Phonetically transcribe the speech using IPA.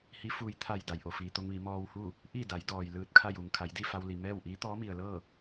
h i˧˥ f uː˧ j t̪ʰ a˧˩ j d a˩ j ʔ o˩ f iː˩ t̪ o˧ ŋ ʋ i˩˧ m ɔː˧ w h u˥˨ | ʔ i˥˨ d a˩˧ j d ɔː˩ j l ɯː˧ t̚ kʰ a˥˨ j uː˩ ŋ kʰ a˩˧ j d i˥˨ f a˧ w l i˩ m ɛː˥˨ w ʔ iː˧˥ t̪ ɔː˧˥ m i˩ ə̯ l ɤː˥˨

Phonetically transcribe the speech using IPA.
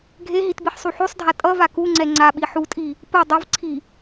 ɡʱ e ɦ i t b i ħ sˤ u ħ o sˤ dʱ a tʼ ʌ v a k u ŋ͡ǀ ɛ ŋ͡ǀ a ɓ i ħ u tʼ i | p ɯ dˤ ʌ v ǀʰ i

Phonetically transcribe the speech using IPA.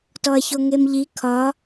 t ɔ ɐ̯ ç o ŋ e m ʎ i kʰ ɒ

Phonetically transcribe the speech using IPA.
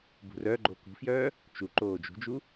b ṳ r œ ɡ͡ǃ o k ṳ f j œː | t͡ʃ u ǃ oː d͡ʒ ṳ d͡ʒ u

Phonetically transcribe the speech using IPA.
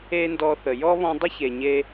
e˦ n d ɔ˧ θ ə˨ j ɔ˦ β ɔ̃˧ dˤ ə˦ ç e˨ ɲ e˧

